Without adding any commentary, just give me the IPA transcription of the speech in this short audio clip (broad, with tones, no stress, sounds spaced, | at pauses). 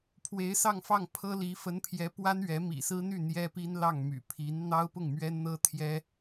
pʰ w e˧˥ ɪ̯ s ɑ˥˧ ŋ f ɑ˥˩ ŋ pʰ ɤ˥ l i˧˥ f ə˧˥ n pʰ j ɛ˧˥ p w a˥ n ɥ ɛ˧˥ m ḭ˨˩ s ɹ̩˥ n̪ y˥˩ n̪ j ɛ˥ p i˥ n l ɑ˥˩ ŋ m y̰˨˩ pʰ i˧˥ n n̪ ɑ˥ ʊ̯ p ʊ˥˩ ŋ m ɥ ɛ˥ n n̪ ɤ˥ t̪ʰ j ɛ˥